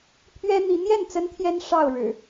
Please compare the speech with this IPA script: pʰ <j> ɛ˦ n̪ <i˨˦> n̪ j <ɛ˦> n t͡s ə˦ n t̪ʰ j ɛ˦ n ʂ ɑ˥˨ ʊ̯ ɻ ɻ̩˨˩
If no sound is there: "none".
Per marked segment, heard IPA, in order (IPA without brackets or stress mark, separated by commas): ɥ, i˨˦, ɛ˥˨